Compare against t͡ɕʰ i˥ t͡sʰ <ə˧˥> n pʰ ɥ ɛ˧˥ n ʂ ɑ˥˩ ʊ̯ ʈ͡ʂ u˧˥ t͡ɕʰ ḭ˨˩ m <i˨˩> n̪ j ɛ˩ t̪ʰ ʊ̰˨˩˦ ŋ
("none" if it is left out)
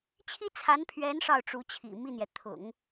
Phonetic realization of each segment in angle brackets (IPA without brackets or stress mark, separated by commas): a˧˥, i˥˩